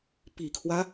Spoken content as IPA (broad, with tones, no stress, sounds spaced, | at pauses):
p i˨˩ kʰ w ä˦